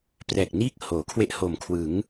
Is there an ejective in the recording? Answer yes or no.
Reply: no